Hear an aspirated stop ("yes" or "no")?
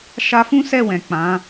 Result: no